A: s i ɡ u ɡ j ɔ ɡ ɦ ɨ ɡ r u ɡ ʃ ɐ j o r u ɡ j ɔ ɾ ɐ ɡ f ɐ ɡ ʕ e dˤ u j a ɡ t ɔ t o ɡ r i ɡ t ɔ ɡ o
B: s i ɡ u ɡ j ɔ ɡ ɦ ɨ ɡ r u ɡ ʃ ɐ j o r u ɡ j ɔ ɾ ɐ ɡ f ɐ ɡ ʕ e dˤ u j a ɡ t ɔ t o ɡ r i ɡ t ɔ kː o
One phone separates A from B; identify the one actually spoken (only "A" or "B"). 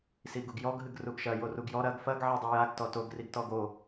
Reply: A